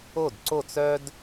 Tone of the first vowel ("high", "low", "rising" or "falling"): falling